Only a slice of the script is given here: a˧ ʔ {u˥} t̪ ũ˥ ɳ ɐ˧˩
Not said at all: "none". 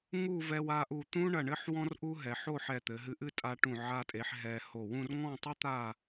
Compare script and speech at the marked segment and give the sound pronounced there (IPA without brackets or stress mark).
u˧˩